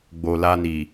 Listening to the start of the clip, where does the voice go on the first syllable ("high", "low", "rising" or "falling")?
low